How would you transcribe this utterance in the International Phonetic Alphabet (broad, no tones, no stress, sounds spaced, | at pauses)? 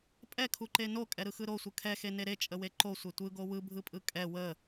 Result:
pʼ ɛ kʰ u ǃ e n o kʼ ɛ ɾ ɯ x ɯ ɾ o sʷ ɯ kʰ ɛ x e n e ɾ e t͡ʃʼ ə w e ǃ o sʷ e tʷ ɯ ɡ o w ɯ bʱ ɯ pʼ ɯ kʼ ɛ w ə